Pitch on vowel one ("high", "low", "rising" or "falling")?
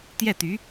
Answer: falling